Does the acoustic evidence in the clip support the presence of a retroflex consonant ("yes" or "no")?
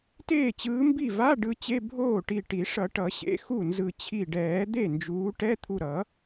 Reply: yes